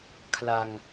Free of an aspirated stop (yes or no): no